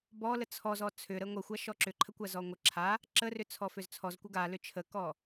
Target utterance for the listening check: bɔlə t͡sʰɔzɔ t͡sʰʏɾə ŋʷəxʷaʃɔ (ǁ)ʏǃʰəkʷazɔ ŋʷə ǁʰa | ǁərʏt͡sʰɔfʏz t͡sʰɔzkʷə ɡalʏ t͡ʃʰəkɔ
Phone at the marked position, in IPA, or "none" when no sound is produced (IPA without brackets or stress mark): ǁ